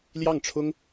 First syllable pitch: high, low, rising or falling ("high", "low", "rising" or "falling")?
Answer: falling